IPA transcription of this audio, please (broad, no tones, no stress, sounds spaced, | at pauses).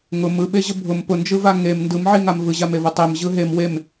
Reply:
ŋ ʊ m ɯ ɓ e ʑ ə bʱ ʊ m p ʊ n d͡ʒ ɯ v a ŋ e m n d ɯ m ʕ i ŋ a m v ɯ ʑ a m e v ʊ tˤ e m ʑ ɯ ɦ e m w e m